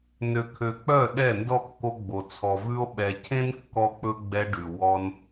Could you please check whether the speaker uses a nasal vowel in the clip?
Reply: yes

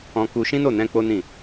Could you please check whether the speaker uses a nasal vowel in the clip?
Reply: yes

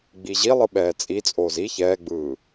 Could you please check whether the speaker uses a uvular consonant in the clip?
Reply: no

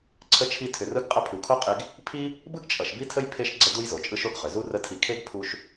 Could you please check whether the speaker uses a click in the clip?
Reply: yes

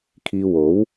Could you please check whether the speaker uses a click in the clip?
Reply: no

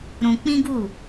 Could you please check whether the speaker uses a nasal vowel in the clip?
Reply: yes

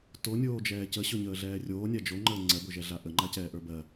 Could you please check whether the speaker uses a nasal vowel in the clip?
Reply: no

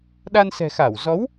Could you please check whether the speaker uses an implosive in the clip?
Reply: yes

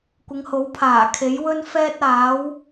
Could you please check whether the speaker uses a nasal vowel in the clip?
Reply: no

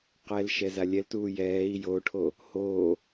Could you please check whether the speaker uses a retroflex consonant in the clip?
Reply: yes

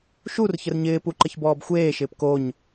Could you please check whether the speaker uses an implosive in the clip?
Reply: no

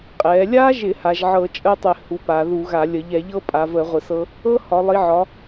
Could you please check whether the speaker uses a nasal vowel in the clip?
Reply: no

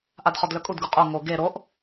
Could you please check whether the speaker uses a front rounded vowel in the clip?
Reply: yes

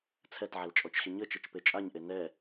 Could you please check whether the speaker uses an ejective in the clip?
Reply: yes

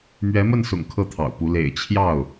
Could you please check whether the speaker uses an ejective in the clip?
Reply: no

